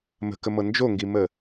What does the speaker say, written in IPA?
m ə̤ k ə m ɤ n d͡ʒ o ŋ ɡ i m ə

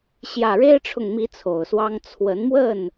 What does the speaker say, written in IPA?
ɕ j ä˨˩ ɻ e˦ ɪ̯ ʈ͡ʂʰ ʊ˨ ŋ m i˨˦ t͡sʰ o˨˩ ʊ̯ s w ɑ˦ ŋ t͡sʰ w ə˨˦ n m w ə˥˨ n

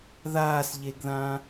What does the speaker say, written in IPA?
ð aː s ʎ e ɡ ð ã

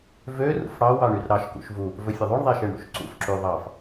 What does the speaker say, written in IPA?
v ø r ṵ f ɽ ɑ w ɑ ɳ y r ɾ ɑ ʃ k ṵ ʃ v u | v ɵ fʲ ɵ ðˤ u ɳ ðˤ e ʃ e ɳ ɽ ṵ ʃ ǀ ṵ f ǁ y ðˤ ɑ f

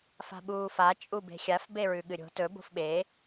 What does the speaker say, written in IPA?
f a̤ ɓ uː f a t͡ʃʼ u b e̤ xʲ a f b e ɹ ʉ ɠ ɨ ɾʲ o̤ t ɵ b o̤ f ɓ e

